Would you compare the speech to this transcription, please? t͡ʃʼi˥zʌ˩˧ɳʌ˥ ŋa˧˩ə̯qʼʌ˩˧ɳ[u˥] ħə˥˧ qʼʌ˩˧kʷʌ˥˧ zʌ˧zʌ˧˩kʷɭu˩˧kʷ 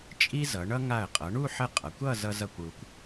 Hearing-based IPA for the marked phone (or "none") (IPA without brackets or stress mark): u˥˧